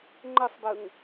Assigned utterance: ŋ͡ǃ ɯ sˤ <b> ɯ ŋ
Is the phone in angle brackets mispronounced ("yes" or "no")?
no